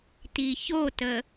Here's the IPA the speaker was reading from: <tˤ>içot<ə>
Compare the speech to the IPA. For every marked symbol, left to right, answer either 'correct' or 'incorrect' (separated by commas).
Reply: incorrect, correct